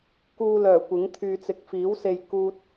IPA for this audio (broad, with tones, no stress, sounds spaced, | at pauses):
k uː˧ l œː˨˩ kʷ ɪ˨˥ ŋ t̪ʰ yː˨ t͡s ɪ˨ k̚ f iː˨˥ w s e˧ j k uː˥ t̚